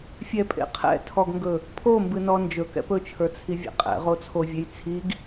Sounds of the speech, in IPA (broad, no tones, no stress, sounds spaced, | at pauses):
fʲ ɛ pʼ ḛ qʰ ɛ̰ tʰ ɔ ɡ ŋ ɡ ɵ | pʰ o m b ɨ n ɔ n d͡ʒ ɵ k ɛ̰ p ɵ t͡ʃʰ ə˞ t͡sʰ i vʲ ɛ̰ qʼ ɛ̰ ʁ o t͡sʰ o vʲ e j t͡sʰ i ɡ